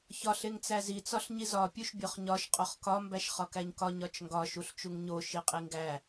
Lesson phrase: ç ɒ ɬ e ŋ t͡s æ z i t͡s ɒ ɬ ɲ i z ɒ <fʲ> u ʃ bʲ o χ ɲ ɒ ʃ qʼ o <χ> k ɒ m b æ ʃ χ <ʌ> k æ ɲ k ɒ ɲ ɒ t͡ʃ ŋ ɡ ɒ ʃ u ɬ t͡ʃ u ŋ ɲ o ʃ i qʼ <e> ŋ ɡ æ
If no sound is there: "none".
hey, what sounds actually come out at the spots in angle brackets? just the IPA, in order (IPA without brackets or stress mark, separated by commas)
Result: pʲ, χ, ɒ, i